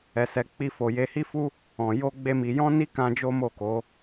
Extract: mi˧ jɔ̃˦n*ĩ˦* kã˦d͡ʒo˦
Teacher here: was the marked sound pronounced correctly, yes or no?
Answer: no